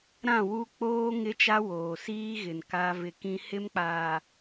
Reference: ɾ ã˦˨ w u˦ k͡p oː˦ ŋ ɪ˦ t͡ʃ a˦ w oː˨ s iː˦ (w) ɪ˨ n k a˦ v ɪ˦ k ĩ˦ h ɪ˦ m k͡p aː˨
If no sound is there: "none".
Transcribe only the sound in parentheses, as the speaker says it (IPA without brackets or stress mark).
ɣ